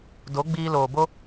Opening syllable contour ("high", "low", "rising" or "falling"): rising